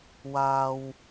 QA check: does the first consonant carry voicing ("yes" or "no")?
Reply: yes